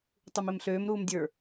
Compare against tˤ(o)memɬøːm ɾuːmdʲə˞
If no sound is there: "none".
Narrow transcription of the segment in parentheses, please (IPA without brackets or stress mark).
u